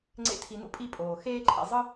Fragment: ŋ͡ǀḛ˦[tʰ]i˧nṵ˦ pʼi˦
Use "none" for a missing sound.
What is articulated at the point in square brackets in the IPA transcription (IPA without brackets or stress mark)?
tʰ